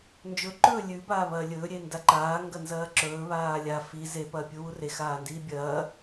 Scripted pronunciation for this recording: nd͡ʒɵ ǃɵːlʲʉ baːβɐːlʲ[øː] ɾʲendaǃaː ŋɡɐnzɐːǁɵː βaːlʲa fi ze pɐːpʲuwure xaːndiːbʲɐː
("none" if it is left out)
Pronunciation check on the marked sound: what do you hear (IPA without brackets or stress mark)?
ɵː